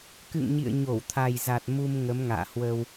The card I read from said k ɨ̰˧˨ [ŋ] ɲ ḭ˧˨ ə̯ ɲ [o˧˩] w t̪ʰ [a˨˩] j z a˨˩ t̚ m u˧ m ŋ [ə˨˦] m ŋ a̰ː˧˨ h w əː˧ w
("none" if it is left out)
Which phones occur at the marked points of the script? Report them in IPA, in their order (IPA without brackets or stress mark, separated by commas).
ŋ, o˧˩, a˨˩, ə˨˦